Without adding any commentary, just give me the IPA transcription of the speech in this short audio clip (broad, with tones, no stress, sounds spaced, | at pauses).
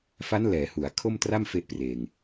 f a˦˥ n l ɛː˩˦ h u˩˦ a̯ kʰ o˥˩ m t r a˥˩ m f e˦˥ ʔ p r eː˧ ŋ